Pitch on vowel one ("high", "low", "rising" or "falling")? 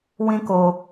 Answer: high